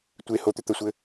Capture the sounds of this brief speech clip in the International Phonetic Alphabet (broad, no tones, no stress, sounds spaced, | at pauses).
tʷ e h o t̪ ʏ t̪ ə sʷ ɘ